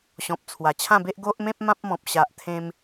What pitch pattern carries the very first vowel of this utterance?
low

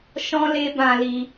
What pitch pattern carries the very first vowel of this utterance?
high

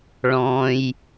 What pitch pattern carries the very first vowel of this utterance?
low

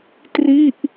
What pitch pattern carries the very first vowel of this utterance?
falling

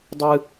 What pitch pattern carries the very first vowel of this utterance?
high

